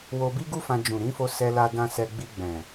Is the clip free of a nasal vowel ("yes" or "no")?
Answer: no